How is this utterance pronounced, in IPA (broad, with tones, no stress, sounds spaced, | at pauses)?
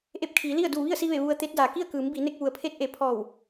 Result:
ʔ e˧˥ p̚ kʰ iː˩˧ l i˥˨ ə̯ d uː˧˩ ʋ i˥˨ ə̯ s i˧ ʋ e˧˩ ʋ u˧ ə̯ t̪ e˧˥ t̚ d aː˩ k i˥˨ ə̯ k ɯː˩˧ m b iː˩˧ n e˧ k̚ ʋ u˩ ə̯ pʰ e˧˥ t̚ ʔ e˩ pʰ ɔː˧˩ w